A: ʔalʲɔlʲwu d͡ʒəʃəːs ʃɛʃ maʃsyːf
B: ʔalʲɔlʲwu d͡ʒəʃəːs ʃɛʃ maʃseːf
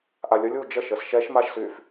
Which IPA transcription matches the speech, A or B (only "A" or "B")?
A